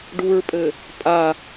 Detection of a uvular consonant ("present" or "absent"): absent